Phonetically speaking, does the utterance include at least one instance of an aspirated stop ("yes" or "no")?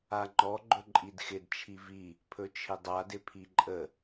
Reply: yes